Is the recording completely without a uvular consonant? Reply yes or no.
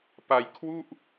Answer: yes